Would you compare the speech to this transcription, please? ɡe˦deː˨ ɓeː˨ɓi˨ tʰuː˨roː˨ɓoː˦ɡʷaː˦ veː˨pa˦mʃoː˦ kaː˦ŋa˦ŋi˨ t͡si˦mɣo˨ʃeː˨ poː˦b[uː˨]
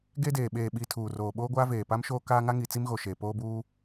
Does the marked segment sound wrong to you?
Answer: yes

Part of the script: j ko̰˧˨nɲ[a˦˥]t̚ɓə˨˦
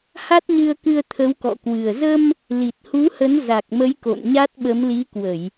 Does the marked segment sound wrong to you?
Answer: no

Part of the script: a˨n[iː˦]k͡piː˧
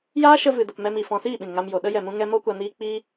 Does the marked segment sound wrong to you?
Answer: yes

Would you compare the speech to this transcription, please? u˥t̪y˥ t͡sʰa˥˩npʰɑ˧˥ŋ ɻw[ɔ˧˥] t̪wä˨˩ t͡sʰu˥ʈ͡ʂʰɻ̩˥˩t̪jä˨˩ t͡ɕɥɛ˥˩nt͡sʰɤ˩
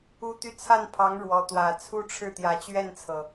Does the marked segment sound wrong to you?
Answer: no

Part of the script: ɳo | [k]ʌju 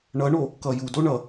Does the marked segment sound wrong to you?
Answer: no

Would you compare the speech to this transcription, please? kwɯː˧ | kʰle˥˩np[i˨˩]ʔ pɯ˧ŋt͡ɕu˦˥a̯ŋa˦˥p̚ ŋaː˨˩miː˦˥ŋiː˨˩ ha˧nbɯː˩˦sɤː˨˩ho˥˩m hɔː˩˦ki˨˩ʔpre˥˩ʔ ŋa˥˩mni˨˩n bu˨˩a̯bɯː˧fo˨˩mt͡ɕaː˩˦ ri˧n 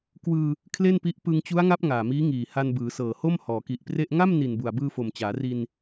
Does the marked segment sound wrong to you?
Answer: yes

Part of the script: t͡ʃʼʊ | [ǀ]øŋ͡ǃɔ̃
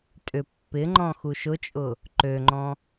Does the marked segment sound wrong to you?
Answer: yes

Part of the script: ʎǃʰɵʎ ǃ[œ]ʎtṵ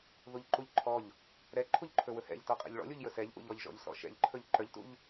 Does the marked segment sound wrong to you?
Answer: no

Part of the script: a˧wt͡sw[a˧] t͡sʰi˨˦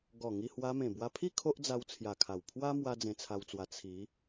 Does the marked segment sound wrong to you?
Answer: no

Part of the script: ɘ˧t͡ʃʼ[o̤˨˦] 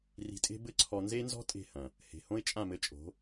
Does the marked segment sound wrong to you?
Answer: no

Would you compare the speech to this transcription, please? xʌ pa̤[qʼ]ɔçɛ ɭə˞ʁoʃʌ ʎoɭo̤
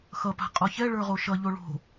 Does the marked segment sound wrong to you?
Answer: no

